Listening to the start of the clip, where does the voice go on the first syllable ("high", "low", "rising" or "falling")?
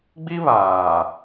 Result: high